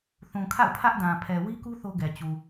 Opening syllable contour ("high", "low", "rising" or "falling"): low